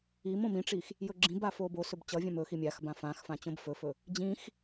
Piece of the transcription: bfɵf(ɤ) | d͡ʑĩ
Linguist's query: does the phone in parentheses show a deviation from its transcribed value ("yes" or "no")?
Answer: yes